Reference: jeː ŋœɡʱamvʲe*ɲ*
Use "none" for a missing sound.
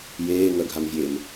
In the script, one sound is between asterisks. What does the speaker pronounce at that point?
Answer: m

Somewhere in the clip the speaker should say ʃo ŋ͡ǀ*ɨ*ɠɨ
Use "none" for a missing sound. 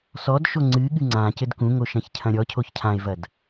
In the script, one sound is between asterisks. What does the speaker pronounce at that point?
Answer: ɨ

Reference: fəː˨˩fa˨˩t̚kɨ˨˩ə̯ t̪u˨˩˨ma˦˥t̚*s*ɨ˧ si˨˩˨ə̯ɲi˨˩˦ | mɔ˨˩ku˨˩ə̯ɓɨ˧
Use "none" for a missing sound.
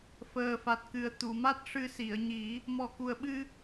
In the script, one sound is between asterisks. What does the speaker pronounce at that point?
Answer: ʂ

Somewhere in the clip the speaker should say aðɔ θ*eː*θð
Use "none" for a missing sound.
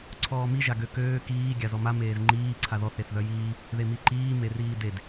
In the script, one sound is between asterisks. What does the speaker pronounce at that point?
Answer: e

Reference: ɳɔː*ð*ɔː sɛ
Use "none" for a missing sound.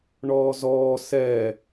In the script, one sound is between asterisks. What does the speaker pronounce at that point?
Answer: z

